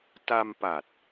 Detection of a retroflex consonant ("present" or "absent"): absent